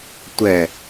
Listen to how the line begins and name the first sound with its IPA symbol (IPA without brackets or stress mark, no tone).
tʷ